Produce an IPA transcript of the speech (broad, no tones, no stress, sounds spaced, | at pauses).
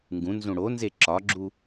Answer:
ŋ ɡ ũ n z ũ ɽ o n z e ǁ ɒ ɡ͡ǁ u